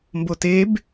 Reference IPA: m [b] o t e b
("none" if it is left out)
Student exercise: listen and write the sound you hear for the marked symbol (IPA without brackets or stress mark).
b